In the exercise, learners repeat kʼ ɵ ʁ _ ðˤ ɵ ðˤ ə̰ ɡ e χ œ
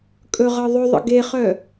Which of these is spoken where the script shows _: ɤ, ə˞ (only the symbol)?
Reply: ɤ